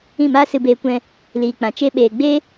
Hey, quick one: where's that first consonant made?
lips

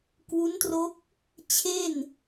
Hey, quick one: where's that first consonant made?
velum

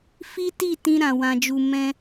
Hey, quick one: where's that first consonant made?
lips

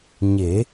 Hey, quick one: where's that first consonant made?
palate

